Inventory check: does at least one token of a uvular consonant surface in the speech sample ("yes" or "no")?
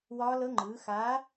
no